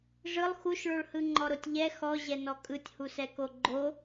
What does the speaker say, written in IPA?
ʐɯlˠ xuʃɭoɭhɯ ŋ͡ǃɔɾotʲʎɛ xɔʑɛnɔ kʼɯtʲhusɛko ɡ͡ǃo

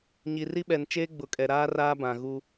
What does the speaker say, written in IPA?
ɲi˨ri˦ɓɛ˨n t͡ʃeː˦ɡ͡bʊ˨kʼɛ˨ɾaː˦ raː˦bã˨ ɣu˦

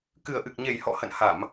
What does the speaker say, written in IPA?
kɨ˨˩ə̯ʔɨ˨˩k̚ɲe˨˩jhɔ̰˧˨ hə̰˧˨nha˧˩˨m

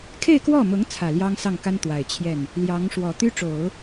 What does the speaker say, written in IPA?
kʰe˥˧ɪ̯kwɔ˥˩mʊ˧˥ŋ t͡sʰä˨˩ljɑ˥ŋsɑ˥˩ŋka˥n t̪wa˨˩ɪ̯t͡ɕʰjɛ˥˩n | ljɑ˧˥ŋʂwɔ˨˩ t̪y˥ʈ͡ʂo˨˩˦ʊ̯

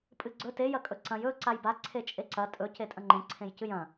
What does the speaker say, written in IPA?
pʼɨɡ͡ǀɵ te jɐkʼɵǀɐ̃j ɵ ǀajba ǀʰet͡ʃʼeǀɐ tʼɵ cetʼɐ̃ŋ͡ǃẽ ǀʰẽjcɨjɐ̃

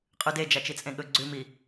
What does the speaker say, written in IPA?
qʼʉde d͡ʒat͡ʃit͡sʼẽɠɵ ɡ͡ǀʉmi

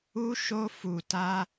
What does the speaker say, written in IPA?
u˦ʃo˦fu˧ ta˦

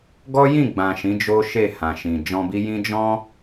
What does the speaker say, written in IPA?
ɡɔ˦jĩ˦˨ɡ͡bã˨ ʃĩ˨˦ d͡ʒo˦ʃe˦˨ hã˨ʃĩ˨ d͡ʒɔ̃˧bi˦jĩ˦ d͡ʒɔ̃˦

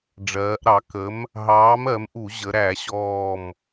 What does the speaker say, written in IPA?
ɖ͡ʐɜː˩˧ʔɾɑ˩˧ kə˨˥m | ɦɑː˨˥mɜ˩˧mʔu˧˩˧ ʑə˩˧ɾæ˧˩˧ɕɔː˧˩m

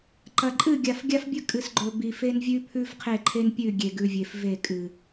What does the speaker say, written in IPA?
ǃɐ˨ ǃʼɨ˦˨ɡʲa˨fɡʲa˦fbʲɵ˦ kʼɨ˨sɡ͡ǃɵ˨ bi˨fe˦nvʲʉ˦pʰʉ˦v qʰe˦˨ǃʰe˦npʲʉ˦˨ ɡʲe˨ɡʉ˨vʲe˨fve˦˨ kʼɨ˨

